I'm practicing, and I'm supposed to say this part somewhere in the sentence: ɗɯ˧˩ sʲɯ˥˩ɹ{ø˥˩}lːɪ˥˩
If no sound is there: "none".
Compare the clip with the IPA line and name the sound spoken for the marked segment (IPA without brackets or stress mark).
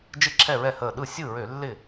ø˧˩˧